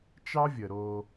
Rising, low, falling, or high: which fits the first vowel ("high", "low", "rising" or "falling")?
high